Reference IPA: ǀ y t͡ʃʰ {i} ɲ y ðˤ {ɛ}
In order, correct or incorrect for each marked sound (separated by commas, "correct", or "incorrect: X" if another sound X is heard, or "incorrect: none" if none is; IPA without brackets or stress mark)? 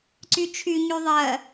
incorrect: y, incorrect: ɜ